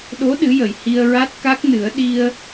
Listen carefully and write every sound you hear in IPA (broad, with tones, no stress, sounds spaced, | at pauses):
ɗ o˧˥ ɗ ɨ˧˥ j ə˨˩ j h i˧ ə̯ ɹ a˦˥ t̚ k a˦˥ k̚ n ɨ˨˩˦ ə̯ ɗ i˧ ə̯